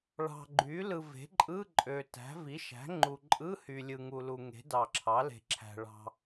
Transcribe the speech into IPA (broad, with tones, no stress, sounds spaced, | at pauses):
ɭ ɑ̤˨ ɡ͡ǃ y˩˥ l ɯ˨ v e̤˩˥ ǃʼ ɯ˧˥˧ ǃʼ ø˨ t æ̤˩˥ v i˩˥ ʃ æ̤˩˥ ŋ͡ǃ u˨ ǃʼ ɯ˧˥˧ h y˨ lʲ ɯ˨ ŋ u˨ l u˨ ŋ e̤˩˥ d ɑ˨ ǁʰ ɑ˩˥ l e̤˨ ǁʰ æ̤˨ ɭ ɑ̤˨